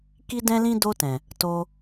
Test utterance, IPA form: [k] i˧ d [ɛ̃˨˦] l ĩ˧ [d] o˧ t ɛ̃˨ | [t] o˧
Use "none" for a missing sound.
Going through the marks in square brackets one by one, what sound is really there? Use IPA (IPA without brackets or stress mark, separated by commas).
k, ɛ̃˧, d, t